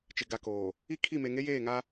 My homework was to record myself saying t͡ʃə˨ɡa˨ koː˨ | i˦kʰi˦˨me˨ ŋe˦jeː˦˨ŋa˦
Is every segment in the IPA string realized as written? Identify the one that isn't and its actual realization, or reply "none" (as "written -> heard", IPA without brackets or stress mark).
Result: ə˨ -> ɪ˨